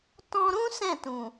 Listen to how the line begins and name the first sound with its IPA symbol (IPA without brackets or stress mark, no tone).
t